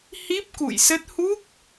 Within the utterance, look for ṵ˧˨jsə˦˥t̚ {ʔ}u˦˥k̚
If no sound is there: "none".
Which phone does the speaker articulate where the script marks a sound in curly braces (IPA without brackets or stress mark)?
h